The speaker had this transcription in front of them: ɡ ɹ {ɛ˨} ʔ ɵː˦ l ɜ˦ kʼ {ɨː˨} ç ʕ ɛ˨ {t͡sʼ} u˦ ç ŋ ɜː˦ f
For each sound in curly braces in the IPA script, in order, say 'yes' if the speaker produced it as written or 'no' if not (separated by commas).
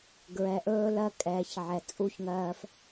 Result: yes, no, yes